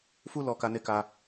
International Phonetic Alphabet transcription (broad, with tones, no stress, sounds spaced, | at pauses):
f u˦ l ɔ˧ k a˦ n e˦ k a˦